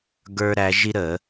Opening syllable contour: high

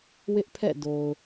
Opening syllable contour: high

